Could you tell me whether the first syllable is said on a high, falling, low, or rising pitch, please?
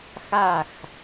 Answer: falling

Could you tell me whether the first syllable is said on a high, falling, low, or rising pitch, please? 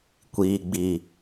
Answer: low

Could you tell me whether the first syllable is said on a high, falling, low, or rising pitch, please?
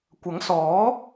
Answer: rising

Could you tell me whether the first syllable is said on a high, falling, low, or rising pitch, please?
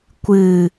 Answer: low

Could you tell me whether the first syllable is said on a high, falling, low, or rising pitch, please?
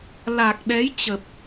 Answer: low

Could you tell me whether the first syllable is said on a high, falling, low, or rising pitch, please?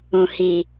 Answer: low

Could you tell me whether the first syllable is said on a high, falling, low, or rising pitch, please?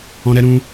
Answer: high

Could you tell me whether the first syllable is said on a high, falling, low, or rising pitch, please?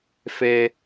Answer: high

